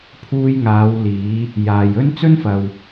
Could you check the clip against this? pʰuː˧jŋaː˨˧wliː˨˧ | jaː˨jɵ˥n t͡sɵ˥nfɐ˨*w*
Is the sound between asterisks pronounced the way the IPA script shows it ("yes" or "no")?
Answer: yes